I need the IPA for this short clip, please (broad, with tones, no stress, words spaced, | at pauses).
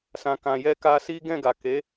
sã˨kã˨jɛ˧ ka˧si˦ ɡɛ̃˦˨ɡa˨ ke˨˦